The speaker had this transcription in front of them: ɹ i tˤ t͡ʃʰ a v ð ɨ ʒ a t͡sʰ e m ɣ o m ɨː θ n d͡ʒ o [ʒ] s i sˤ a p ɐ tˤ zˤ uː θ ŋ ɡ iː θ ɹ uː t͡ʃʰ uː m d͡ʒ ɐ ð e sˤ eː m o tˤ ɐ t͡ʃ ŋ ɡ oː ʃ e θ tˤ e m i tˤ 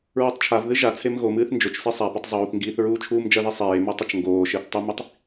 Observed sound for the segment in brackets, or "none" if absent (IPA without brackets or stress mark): t͡ʃ